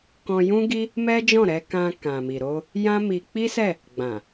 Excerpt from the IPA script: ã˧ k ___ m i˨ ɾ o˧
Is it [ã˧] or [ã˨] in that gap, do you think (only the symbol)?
ã˨